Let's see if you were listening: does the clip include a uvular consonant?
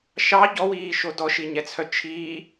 no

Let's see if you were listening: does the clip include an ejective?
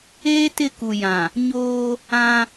no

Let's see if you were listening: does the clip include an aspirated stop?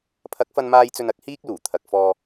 yes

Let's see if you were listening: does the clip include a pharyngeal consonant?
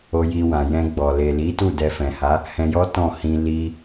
no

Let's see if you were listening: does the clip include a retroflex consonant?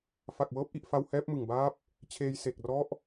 no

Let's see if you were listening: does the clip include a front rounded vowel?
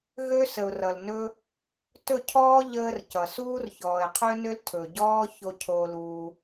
yes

